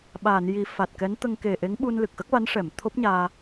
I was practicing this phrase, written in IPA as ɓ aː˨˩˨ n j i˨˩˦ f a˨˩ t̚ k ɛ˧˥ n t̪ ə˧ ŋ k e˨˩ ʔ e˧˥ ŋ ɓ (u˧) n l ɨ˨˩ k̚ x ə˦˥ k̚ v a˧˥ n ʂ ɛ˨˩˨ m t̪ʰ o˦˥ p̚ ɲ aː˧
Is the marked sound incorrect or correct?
correct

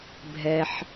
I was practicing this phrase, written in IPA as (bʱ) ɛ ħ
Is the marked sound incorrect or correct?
correct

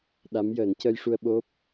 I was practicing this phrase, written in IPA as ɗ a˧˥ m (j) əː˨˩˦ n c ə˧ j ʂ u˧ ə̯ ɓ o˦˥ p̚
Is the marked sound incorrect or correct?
correct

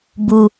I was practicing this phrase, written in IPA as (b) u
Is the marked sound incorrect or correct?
correct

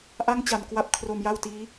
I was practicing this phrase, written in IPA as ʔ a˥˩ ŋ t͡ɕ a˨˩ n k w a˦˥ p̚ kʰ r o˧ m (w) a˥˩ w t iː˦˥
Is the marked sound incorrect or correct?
incorrect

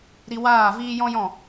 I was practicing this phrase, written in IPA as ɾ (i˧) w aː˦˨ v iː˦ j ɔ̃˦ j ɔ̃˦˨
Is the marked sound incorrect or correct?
correct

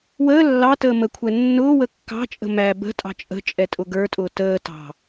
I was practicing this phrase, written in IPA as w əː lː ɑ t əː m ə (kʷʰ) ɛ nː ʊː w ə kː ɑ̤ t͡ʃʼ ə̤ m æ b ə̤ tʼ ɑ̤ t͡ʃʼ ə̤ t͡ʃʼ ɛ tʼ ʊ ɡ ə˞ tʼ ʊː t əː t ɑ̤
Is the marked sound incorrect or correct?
correct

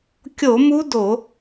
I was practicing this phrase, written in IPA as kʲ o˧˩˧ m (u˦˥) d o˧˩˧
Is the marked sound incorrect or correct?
correct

